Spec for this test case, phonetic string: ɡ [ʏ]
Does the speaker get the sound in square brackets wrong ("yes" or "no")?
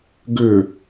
no